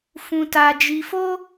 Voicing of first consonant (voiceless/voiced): voiceless